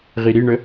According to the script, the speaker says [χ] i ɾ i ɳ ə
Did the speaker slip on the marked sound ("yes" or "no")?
yes